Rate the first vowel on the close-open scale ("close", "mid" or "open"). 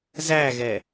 open